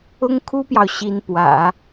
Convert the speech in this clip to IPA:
ʊ˥ ŋ kʰ u˥ p j ɑ˨ ʊ̯ ɕ i˧˥ n p w ä̰˨˩˦

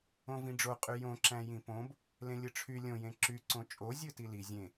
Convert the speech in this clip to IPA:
õ v ĩ ɖ͡ʐ o qʼ y j õ ǁ æ̃ j ĩ p õ b | l ẽ lʲ ɯ ʈ͡ʂʰ y lʲ õ j ẽ ǁ y ǀ õ t͡ʃʼ o zʲ ɯ t i l i zʲ ẽ

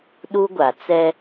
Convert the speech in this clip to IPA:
ɗ u˦ ɡʷ a˨ t͡s ɛ˦

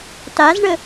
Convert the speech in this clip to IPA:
t a z ɳ ə

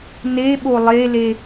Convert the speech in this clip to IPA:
n e ɓ o lˠ e l e

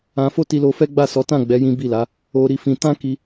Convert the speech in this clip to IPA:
ã˧ f o˦ t i˧ l o˧ f ɛ˦ ɡ͡b a˦˨ s ɔ˨˦ t ã˦˨ ɡ͡b ɛ˨˦ j ĩ˦ b i˦˨ l a˨˦ | o˧ ɾ i˧ f ĩ˧ t ã˦ k i˧

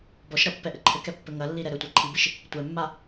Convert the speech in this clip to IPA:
b ɔ ʃ ɾ ɐ pː ɛ ʔ ɘ ǃʰ ɘ k ɛ pː ɘ ŋ ɐ lː i ɾ ɛ ɾ ɘ tʷ a ǃʰ i b ɨ ʃ | tʷ ɛ mː a

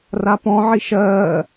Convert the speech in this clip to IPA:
r a p ɔ̃ ʕ i ʃ ɜː

